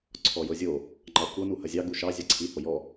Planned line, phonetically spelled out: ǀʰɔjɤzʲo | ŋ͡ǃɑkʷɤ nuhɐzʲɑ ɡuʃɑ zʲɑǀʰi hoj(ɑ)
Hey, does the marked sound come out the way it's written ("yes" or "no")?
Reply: no